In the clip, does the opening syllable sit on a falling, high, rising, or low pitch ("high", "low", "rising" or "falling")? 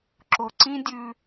low